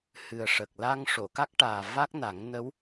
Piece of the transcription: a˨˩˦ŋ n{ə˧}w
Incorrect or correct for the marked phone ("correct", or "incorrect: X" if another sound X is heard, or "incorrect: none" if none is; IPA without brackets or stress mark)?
incorrect: ə˧˥